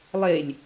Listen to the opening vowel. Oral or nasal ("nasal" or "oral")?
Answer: oral